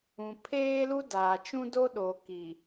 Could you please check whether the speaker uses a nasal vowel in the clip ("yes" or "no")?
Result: yes